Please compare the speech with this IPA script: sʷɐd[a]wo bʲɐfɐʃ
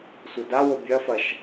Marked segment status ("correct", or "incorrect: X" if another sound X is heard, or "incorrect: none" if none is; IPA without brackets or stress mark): correct